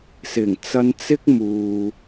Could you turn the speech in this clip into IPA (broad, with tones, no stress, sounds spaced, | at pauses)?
s ɪ˨˩ ŋ t͡s ɐ˧ n t͡s ɪ˥ k̚ m uː˨